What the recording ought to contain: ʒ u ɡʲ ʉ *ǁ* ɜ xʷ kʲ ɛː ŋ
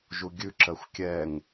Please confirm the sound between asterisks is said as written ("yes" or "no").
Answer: yes